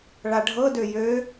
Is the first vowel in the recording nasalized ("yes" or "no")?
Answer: no